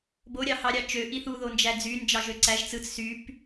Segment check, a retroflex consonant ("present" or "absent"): absent